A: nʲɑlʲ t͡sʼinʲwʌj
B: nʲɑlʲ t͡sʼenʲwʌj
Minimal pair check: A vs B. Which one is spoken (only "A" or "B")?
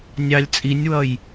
A